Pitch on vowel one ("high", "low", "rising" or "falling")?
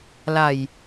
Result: low